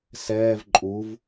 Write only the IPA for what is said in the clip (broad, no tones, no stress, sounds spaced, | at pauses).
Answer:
s ɛː v ǃʼ u v